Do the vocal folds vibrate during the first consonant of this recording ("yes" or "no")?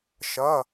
no